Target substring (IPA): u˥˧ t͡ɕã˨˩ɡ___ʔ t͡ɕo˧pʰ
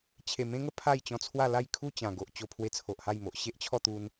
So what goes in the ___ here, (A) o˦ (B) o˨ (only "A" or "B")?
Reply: B